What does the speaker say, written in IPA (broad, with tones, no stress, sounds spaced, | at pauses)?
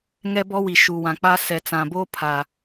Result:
ŋ ɛ˦ b ɔ˦ w i˨ ʃ u˨ w ã˨ k͡p a˦ s ɛ˨ t͡s ã˨ b oː˦ pʰ a˨